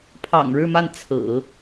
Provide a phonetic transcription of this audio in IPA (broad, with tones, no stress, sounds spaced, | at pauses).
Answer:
pʰ ɑ̰˨˩ ŋ ɻ ɻ̩˥˧ m a˥˩ n t͡sʰ ɹ̩˨˩˦